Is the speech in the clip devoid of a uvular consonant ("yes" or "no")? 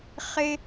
no